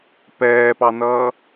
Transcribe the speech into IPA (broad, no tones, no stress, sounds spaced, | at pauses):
p ɛː p ɑ n ʌː